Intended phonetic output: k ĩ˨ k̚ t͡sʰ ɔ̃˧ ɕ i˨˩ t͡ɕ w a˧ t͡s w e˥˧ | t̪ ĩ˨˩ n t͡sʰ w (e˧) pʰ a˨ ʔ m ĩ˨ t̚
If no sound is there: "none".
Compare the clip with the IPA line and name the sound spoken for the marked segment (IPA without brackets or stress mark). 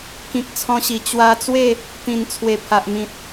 e˨˩